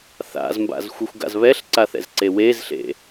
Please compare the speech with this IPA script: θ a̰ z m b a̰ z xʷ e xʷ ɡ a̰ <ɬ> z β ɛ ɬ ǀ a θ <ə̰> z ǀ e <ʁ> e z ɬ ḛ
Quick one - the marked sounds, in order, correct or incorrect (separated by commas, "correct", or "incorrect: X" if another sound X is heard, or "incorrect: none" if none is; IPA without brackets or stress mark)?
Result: incorrect: none, incorrect: ɛ̰, incorrect: w